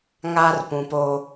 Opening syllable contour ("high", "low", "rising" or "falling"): high